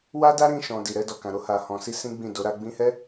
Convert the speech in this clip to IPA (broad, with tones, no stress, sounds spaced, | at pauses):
w a˦ d a˦ ɾ ĩ˦˨ ʃ ɔ̃˨ d i˨ ɾ ɛ˧ d ɔ˨ k ã˨ ɾ o˧ h a˨ h ɔ̃˨ s i˧ s ĩ˦ ɡ͡b ĩ˦˨ d o˨˦ ɾ a˦ ɡ͡b ĩ˧ h ɛ˦